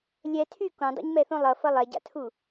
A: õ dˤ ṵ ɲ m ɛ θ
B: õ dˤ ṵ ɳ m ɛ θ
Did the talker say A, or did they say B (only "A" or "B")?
A